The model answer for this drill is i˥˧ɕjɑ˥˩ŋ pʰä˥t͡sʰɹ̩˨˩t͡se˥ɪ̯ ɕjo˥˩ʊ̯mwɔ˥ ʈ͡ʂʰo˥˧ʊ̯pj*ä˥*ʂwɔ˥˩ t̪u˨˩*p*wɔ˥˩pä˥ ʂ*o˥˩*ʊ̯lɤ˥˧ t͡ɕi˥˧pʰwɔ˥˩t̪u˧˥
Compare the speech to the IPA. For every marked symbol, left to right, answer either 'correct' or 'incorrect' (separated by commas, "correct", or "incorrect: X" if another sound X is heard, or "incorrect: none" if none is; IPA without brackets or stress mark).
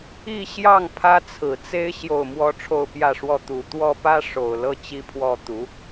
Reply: incorrect: ä˥˧, incorrect: t̪, incorrect: o˨˩